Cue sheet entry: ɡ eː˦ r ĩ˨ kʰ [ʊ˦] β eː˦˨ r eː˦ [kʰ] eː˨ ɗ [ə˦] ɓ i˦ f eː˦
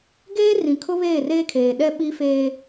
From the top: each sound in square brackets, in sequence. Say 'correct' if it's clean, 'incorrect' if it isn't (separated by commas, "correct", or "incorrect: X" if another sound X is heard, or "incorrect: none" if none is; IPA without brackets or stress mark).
correct, correct, incorrect: ɛ˦